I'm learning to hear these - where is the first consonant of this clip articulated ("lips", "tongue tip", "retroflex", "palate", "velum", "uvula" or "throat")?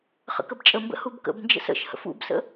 uvula